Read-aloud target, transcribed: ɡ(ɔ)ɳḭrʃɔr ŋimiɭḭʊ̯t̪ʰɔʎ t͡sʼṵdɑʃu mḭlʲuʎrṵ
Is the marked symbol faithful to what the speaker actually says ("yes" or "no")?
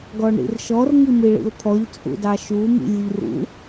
yes